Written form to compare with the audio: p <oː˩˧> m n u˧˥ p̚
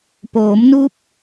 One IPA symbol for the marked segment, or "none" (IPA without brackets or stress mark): oː˩˧